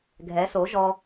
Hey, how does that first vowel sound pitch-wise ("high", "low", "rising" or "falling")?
rising